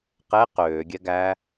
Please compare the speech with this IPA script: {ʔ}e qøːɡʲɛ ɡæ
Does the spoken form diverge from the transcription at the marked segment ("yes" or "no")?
yes